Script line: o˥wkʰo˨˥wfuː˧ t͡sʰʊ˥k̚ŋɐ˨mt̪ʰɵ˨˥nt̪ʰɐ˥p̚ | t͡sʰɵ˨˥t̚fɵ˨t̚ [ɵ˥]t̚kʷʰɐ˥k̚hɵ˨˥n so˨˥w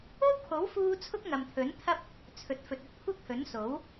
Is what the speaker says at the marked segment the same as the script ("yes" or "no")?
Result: yes